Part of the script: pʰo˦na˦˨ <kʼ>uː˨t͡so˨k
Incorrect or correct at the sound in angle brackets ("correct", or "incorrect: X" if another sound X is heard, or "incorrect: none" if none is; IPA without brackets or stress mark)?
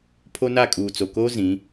correct